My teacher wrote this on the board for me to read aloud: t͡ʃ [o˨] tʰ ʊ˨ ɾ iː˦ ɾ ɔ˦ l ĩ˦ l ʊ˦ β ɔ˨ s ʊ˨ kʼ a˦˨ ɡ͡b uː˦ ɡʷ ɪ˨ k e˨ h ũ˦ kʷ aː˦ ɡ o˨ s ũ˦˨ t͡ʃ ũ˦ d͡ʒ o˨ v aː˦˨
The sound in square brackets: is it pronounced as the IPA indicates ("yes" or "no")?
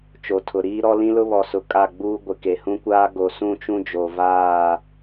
yes